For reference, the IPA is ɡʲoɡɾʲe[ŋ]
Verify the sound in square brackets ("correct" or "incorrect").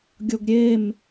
incorrect